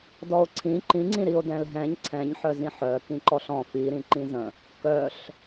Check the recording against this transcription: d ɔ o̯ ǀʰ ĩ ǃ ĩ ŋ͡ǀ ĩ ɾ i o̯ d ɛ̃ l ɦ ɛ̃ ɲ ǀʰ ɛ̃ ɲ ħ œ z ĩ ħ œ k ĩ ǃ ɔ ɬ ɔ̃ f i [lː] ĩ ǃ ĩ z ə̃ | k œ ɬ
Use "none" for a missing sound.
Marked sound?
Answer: ɾ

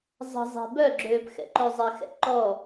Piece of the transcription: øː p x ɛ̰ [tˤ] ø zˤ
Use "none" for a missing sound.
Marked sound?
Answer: ǃ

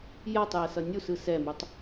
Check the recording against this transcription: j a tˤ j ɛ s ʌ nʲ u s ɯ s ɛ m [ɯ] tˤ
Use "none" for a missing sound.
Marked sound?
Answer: u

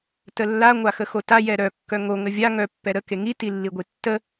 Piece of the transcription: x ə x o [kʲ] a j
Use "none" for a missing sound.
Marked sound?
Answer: t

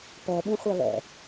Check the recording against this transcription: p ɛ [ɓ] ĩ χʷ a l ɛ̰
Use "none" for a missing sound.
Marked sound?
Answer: ɓ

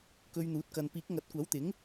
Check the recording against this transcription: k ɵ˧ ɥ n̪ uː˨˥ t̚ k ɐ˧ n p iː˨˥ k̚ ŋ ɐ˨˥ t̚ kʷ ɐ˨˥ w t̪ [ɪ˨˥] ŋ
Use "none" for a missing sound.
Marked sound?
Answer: ɪ˨˥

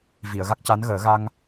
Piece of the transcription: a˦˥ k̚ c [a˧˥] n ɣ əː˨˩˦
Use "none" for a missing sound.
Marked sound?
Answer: a˧˥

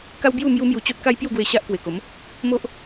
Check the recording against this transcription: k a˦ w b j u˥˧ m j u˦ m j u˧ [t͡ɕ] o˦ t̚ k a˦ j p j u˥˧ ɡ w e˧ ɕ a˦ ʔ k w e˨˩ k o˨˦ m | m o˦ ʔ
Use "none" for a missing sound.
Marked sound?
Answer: t͡ɕ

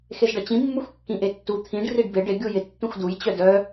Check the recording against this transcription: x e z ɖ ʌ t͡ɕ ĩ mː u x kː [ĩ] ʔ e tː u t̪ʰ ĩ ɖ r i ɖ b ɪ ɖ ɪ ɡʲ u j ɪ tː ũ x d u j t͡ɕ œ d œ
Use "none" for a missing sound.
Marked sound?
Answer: ĩ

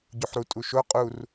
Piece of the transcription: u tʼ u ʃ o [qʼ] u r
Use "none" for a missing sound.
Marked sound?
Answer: qʼ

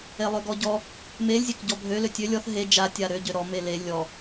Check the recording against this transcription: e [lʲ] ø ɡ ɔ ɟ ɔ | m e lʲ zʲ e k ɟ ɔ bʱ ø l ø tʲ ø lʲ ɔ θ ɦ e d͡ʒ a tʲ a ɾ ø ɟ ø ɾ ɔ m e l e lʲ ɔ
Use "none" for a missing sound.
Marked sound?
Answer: lˠ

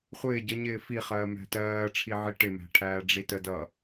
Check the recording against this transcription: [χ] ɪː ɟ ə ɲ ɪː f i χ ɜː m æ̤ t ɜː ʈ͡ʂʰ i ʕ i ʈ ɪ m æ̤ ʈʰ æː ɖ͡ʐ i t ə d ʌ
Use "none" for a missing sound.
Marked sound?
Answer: χʷ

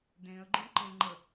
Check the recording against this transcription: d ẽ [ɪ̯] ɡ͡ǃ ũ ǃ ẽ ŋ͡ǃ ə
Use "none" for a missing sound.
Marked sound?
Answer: ə̯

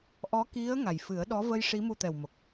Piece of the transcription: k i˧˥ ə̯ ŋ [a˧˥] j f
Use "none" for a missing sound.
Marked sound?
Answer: a˨˩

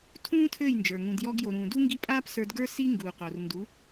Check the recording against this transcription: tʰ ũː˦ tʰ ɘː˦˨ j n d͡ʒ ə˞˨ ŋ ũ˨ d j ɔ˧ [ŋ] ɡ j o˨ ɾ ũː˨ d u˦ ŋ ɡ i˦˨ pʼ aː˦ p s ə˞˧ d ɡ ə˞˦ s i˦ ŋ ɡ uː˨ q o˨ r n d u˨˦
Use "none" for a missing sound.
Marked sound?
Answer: none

